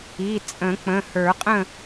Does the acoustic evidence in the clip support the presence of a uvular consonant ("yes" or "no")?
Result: yes